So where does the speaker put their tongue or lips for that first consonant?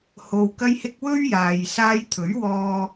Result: throat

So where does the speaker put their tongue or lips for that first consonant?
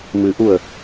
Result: lips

